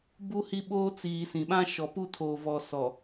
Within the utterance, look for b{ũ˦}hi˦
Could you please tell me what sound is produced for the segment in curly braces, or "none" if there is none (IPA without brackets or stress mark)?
u˦